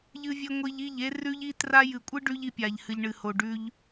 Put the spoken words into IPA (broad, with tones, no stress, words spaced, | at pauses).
ʎɨ˦vʲe˦ ŋʷi˧ʎi˦˨ʎe˦ rʉ˦ʎi˦tra˦ jɨ˨kʷʼɨ˦ ɖʉ˦ʎi˧pʲa˨ʎ hɨ˨ʎɳɨ˨ho˨ɖʉ˧ʎ